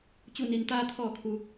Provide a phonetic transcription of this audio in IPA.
t͡ɕ u˧˩ n i˩ n t̪ aː˧ t̪ʰ ɔː˧˩ kʰ u˩

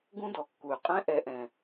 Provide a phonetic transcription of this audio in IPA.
ɡ ũ˦ d ɔ˨ kː u˨ y̯ qʼ ɛ̃˦ ʔ ɛ˨ ʔ ɛ̃˨

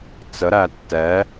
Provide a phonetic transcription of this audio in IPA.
t͡s ə ɾ æ tː ɛ

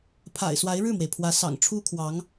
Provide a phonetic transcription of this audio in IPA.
pʰ a̰˨˩ ɪ̯ s w a˧˥ ɪ̯ ɻ ɻ̩˥˩ m w e˩ ɪ̯ pʰ w ä˧˥ s ɑ̰˨˩ ŋ ʈ͡ʂʰ u˥ kʰ w ɑ˧˥ ŋ

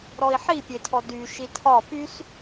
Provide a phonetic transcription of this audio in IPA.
ɾ ɔ i̯ ħ i pʲ e tʰ ɔ d y ʃ i tʰ ɒ p y s

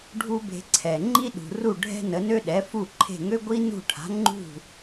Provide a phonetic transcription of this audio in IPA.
ɖʱ u˥ b e̤˧ ǀʰ ɛ˩ ŋ͡ǃ i˥ ɗ ṳ˩ r u˥˩ ɖʱ ɛ̤˥ n ə˩˥ n ø˥ ɗ ɛ˩˥ f u˥˩ ǃʰ e̤˥˩ ŋ ø˥ ɡʷ i˥ n ṳ˥˩ ʈʰ a̤˩˥ ŋ͡ǃ ṳ˥˩

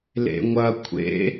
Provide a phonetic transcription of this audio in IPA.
l ḛ ŋʷ ɐ kʷʰ ḛ

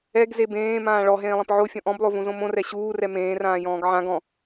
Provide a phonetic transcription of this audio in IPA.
ɛ ɡ z e b ẽː m ãː ɭ ɔ ɦ ẽː lˠ ẽ p ʕ o fʲ ɔ̃ ʔ ɔ̃ b lˠ o v ũ z õ m õ r ɛ ɕ uː r ɛ m ẽː r ãː j ɔ̃ː ɡ ʕ ã ɡ ɔ̃

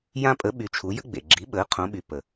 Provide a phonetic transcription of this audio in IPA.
j ã˦ pʼ ə˩˥ ɓ y˩˧ t͡ʃʰ u˩˧ j ə̰˦ ɡ͡b ḛ˩ ɡ͡ǁ i˩˥ ɓ əː˩˥ qʰ õ˩˧ ɓ y˩ p ə˩

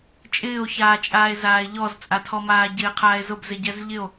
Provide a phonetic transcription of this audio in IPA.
t͡ʃʼ ɪː o̯ ç aː t͡ʃʼ aː e̯ z aː e̯ ʎ ɔ z t͡sʼ a tʰ ɔ m aː ɟ ɪː qʰ aː e̯ z ʊ b z ɪ ɟ ɛ z ʎ ɪ o̯

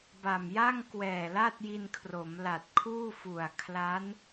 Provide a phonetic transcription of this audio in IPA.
b a˨˩ m j a˥˩ ŋ k w ɛː˨˩ l a˥˩ t̚ j i˧ n kʰ r o˩˦ m l a˨˩ t̚ kʰ uː˥˩ f u˨˩ a̯ kʰ l a˦˥ n

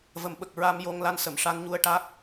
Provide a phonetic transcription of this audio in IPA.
v ə˨˩˦ m ɓ ə˨˩ k̚ ɹ a˧ m j o˧ ŋ l a˧˥ n s ə˨˩˨ m ʂ a˧ n ɲ u˧ ə̯ ʈ a˦˥ k̚

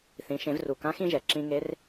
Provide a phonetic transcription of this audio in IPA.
θ ĩ˩˧ ʃ ẽ˩˧ v r u˩ k ã˧˥ x ĩ˥ ʒ ɛ˩ ǁ ĩ˧ ŋ e˧˥ r

